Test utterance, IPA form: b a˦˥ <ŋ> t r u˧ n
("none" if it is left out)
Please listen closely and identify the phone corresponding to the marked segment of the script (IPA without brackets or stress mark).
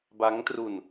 ŋ